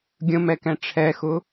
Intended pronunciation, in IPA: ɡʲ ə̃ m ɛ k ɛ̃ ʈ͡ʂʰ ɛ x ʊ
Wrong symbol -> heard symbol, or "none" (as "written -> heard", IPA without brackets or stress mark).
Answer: none